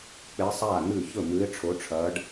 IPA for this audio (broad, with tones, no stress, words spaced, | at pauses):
k͡pe˧˥sˤaː˥˨ n̪ʉ˥˨ çɵ˥˨mʉ˧˥ɪ̯ ʈ͡ʂʰo˧˥ʈ͡ʂʰɐː˧˥ɖ